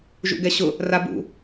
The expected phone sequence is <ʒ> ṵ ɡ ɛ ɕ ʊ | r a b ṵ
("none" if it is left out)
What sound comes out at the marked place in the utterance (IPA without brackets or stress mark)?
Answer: ʒ